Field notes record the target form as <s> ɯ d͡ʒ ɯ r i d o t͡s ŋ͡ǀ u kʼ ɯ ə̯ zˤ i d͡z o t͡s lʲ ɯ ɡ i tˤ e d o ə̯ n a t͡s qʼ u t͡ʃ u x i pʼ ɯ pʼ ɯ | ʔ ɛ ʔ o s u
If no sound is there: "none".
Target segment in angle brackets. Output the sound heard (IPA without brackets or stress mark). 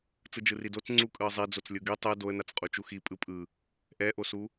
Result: t͡s